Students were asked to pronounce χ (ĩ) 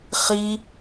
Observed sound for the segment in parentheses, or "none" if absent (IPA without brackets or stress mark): i